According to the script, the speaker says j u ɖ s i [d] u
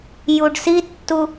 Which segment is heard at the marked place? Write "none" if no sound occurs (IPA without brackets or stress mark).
tː